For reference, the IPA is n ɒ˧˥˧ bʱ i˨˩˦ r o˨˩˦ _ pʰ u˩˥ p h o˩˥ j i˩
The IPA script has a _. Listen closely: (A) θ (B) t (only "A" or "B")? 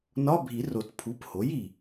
B